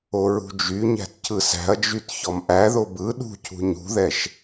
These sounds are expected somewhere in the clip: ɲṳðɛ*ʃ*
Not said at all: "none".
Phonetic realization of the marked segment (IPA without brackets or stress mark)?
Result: ʃ